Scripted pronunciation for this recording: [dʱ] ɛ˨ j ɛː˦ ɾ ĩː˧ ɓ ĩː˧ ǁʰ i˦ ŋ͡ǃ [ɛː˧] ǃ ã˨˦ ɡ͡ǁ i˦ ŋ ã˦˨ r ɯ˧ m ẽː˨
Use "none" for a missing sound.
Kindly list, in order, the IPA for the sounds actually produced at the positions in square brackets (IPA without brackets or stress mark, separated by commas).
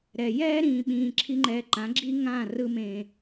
ɾ, ɛː˧